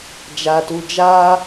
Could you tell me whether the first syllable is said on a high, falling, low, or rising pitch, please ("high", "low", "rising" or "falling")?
low